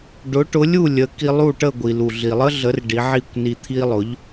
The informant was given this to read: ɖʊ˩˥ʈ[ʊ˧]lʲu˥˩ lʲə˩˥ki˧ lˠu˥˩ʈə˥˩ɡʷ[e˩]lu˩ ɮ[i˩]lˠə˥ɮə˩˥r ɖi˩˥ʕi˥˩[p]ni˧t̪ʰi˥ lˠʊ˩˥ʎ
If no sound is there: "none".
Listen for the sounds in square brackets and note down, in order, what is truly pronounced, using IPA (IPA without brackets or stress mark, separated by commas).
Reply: ʊ˩˥, i˩, i˩, kʷ